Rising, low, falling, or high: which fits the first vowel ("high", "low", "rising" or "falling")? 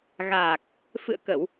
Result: low